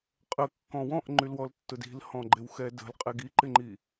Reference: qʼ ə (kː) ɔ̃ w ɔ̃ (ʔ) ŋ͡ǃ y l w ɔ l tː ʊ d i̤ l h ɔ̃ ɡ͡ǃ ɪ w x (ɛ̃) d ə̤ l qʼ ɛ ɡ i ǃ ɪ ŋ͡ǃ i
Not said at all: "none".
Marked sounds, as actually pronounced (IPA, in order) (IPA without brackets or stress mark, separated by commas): kː, ʔ, ɛ